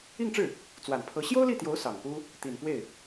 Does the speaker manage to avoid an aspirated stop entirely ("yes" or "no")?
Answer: no